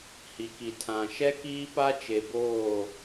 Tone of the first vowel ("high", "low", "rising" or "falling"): low